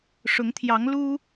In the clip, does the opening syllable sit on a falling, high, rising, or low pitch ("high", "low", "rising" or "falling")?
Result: rising